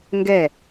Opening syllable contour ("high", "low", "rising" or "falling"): falling